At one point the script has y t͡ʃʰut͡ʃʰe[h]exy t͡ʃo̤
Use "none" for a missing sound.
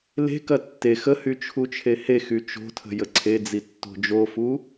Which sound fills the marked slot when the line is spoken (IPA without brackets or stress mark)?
h